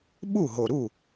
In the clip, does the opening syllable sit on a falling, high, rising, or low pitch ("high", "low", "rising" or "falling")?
falling